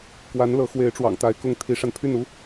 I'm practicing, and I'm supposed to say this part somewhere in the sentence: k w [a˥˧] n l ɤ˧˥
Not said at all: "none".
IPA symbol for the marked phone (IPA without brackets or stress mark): a˧˥